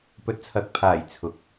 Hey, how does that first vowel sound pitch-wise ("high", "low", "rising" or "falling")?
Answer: rising